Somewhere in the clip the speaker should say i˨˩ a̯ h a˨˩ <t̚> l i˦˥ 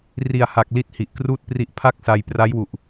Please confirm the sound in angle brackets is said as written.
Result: no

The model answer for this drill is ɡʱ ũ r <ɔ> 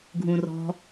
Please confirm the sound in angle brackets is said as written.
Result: no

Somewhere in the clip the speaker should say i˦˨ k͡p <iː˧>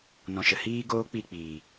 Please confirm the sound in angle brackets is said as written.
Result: no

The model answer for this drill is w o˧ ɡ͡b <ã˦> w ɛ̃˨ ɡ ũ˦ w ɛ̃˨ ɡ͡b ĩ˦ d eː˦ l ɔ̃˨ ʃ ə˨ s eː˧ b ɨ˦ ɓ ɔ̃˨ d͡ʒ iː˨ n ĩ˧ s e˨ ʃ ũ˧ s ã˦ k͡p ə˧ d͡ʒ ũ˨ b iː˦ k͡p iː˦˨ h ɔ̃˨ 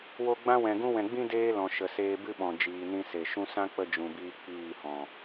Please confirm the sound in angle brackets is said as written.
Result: yes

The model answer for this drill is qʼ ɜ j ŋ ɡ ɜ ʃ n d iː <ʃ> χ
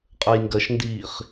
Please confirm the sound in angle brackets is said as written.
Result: no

